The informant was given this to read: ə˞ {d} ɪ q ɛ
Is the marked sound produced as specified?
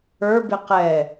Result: no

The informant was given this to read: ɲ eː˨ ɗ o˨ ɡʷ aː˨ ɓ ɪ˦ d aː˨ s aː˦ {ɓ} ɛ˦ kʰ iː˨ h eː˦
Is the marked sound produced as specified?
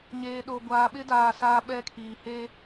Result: yes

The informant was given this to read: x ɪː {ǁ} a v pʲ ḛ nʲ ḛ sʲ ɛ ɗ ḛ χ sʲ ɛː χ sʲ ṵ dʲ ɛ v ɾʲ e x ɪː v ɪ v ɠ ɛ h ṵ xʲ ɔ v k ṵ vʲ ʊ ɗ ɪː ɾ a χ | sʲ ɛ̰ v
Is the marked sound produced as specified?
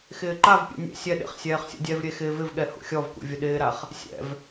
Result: no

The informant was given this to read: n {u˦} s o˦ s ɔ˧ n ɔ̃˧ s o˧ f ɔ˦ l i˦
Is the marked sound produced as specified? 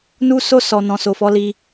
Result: yes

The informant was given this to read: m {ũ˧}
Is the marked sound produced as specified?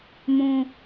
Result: yes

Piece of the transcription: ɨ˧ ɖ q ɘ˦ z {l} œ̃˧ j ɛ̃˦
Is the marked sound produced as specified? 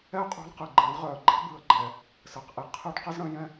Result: no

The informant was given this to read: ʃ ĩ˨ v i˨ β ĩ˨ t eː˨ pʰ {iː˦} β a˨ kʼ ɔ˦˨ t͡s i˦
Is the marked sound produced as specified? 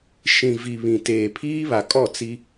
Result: yes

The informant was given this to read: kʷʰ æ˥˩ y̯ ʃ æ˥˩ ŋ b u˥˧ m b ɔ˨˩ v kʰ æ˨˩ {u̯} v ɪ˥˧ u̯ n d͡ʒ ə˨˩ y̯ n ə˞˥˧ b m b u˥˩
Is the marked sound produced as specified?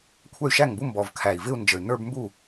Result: no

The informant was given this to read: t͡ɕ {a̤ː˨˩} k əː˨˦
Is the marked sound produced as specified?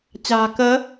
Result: yes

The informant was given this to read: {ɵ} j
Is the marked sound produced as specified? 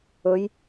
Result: yes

